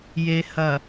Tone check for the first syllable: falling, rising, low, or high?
low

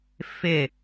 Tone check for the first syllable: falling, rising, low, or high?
falling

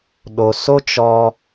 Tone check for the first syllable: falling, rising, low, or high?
low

